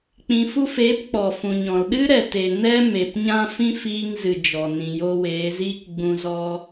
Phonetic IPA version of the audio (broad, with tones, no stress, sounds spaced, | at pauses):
k͡p ĩ˨ f u˧ f eː˨˦ p k͡p ɔ˨ f ũ˨ ɲ ɔ̃˨ l ɗ ɨ˦ ɾ ɛ˨ t e˨ n ɛ˦ m e˨ p ɲ ã˦ f ĩ˦ f iː˧ ŋ z ɨ˨ d͡ʒ ɔ˨ n ĩ˨ j o˧ w eː˨˦ z iː˦ k ɡ͡b ũ˧ z ɔ˦